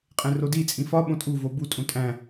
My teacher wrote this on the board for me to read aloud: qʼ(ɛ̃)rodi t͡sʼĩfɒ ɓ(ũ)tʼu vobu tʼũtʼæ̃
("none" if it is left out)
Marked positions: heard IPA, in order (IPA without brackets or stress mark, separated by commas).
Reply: ẽ, õ